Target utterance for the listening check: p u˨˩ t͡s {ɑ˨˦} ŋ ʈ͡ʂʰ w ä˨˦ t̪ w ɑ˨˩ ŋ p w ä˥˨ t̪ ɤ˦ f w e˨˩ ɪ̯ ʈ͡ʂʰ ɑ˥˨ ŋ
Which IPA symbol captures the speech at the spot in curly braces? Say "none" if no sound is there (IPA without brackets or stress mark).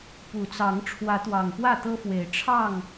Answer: ɑ˨˦